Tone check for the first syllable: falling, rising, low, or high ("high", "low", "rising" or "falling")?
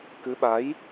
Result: rising